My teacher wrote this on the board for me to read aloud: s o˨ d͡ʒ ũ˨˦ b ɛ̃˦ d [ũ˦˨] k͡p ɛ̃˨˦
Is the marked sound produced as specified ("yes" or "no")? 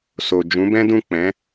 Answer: yes